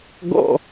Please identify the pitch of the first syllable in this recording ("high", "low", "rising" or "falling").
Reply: falling